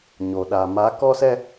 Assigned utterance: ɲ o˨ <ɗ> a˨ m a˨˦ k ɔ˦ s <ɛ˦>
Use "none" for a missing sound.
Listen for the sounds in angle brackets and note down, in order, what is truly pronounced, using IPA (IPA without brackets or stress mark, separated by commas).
ɗ, ɛ˦